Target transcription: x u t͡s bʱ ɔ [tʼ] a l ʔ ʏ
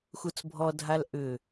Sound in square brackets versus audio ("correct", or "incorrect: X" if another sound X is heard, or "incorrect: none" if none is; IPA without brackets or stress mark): incorrect: dʱ